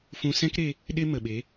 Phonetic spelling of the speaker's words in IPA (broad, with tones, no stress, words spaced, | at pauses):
fũ˧sɛ̃˦kɾe˧ | ɗe˦mə˨ɓe˨˦